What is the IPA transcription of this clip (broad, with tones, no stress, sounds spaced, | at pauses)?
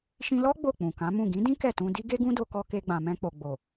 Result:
ʃ ĩ˧ l ɔ˦ ɡ͡b o˦˨ k͡p ũ˨ k ã˨˦ m ũ˦˨ ɡ ĩ˨˦ d ĩ˦ k ɛ˦˨ t ũ˧ d i˦ ɡ e˦ ɡ ũ˦ d o˧ k ɔ˧ k e˧ ɡ͡b ã˨ m ɛ̃˧ k͡p o˨ ɡ͡b o˨